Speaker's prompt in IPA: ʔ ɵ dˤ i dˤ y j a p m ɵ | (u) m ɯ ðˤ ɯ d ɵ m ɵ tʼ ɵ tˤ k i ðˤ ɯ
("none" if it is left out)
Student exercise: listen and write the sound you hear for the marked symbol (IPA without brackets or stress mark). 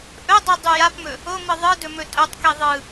o